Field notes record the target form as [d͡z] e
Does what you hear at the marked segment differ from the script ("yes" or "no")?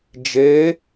yes